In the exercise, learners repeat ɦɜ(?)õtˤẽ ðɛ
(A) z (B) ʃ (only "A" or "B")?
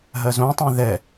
A